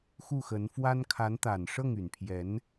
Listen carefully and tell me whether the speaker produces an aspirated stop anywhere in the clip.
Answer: yes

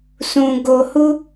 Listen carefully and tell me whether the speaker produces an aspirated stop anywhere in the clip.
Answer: no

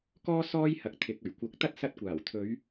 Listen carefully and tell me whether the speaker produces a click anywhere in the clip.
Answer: no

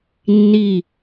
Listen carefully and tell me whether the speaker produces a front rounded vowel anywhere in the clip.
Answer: no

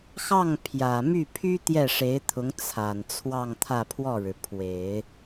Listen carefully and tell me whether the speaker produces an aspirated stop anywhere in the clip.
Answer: yes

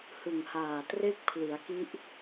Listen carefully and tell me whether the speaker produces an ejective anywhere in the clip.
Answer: no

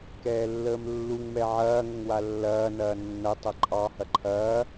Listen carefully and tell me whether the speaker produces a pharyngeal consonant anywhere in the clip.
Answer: yes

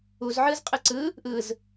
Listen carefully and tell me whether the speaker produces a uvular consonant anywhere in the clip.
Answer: yes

